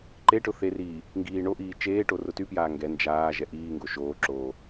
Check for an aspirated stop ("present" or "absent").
absent